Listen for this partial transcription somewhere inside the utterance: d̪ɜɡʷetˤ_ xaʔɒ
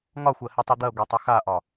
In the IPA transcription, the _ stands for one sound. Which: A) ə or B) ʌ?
A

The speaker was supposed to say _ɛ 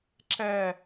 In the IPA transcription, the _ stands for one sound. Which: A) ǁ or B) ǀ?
A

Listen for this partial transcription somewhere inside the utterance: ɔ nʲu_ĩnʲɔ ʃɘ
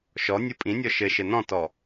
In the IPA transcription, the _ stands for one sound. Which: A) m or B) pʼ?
B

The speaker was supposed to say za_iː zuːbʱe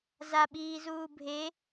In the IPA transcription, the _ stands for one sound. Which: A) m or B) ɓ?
B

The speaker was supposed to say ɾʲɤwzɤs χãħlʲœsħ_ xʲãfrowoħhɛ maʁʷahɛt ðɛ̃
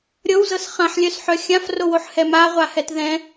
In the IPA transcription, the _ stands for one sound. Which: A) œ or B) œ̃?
A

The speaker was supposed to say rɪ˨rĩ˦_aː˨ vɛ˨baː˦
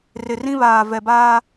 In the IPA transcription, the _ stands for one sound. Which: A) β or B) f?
A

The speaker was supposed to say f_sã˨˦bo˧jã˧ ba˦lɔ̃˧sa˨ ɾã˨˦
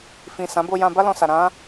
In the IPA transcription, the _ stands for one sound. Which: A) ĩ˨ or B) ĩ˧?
A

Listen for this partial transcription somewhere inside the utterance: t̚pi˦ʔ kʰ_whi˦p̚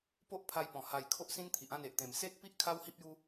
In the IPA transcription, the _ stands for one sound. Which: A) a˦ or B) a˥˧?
A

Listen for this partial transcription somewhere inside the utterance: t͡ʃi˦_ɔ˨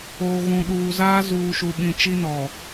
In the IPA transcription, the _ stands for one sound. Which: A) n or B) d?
A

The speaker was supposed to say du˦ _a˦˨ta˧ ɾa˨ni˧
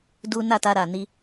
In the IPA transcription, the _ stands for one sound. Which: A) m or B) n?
B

